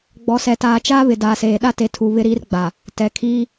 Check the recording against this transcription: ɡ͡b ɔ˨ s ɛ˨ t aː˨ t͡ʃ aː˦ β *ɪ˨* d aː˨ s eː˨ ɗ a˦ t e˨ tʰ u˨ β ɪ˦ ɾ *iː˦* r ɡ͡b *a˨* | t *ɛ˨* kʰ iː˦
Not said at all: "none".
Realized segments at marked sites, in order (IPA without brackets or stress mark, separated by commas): ɪ˨, iː˦, a˨, ɛ˨